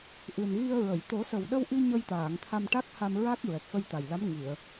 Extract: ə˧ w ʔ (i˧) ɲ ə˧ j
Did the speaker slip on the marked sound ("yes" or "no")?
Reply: no